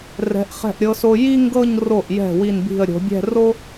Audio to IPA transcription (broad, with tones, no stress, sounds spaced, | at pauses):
r ɛ̤˩˧ ʔ χ ɛ̤˧˩ ʔ ɾʲ ɤ˧ s o˧ j i˥ ŋ ɡ ɤ˥˧ ɲ r o˧˩ ʔ j ɛ̤˧˩ w i˧˩ n b i̤˧˩ ə̯ ɾʲ o̤˩˧ bʲ ɛ̤˥˧ r o˥